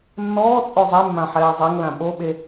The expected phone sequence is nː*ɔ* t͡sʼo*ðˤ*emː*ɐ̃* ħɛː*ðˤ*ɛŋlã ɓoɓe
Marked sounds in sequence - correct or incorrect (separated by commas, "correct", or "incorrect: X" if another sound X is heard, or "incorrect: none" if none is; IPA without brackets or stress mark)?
incorrect: ɔː, incorrect: zˤ, incorrect: ã, incorrect: zˤ